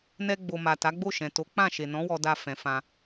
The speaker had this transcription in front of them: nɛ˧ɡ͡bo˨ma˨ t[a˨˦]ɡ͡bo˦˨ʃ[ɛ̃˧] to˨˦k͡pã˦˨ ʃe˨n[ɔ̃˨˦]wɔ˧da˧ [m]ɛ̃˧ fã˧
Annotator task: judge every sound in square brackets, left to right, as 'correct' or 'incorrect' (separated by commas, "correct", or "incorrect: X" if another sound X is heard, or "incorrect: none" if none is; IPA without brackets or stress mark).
correct, incorrect: ɛ̃˨, correct, incorrect: f